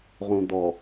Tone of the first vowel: low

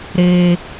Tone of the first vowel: high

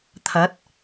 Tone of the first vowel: rising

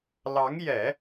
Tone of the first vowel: rising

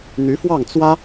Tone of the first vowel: rising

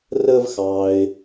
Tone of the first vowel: high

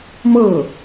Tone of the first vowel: falling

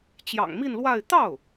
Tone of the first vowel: low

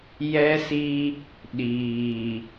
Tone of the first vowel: high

